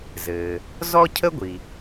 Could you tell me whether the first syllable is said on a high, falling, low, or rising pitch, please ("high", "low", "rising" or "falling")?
low